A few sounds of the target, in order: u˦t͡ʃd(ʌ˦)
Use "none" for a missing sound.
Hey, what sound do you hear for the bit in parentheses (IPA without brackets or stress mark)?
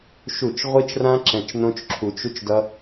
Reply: ʌ˦